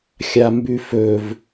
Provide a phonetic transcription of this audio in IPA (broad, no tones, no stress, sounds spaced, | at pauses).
xʲ a m b ʉ f ɵ v